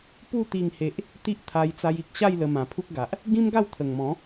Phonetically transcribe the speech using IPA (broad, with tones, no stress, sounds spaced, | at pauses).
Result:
p u˥˧ t̪ i˥˧ ŋ h e˦ ʔ | t̪ i˦ ʔ t̪ʰ a˧ j t͡s a˧ j i˨ k̚ ɕ a˥˧ j l ə˧ m ã˨˩ pʰ u˦ k̚ ɡ a˨ ʔ | ɡ ĩ˦ m ɡ a˥˧ w t̪ʰ ə˨˩ ŋ m ɔ̃˨˦